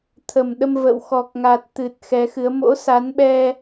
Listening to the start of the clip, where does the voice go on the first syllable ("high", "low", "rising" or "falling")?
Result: low